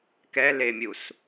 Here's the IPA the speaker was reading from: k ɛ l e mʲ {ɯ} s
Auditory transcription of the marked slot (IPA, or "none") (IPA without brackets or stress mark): u